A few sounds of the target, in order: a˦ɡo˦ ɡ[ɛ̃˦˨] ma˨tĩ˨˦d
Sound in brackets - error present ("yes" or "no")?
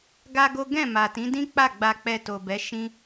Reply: no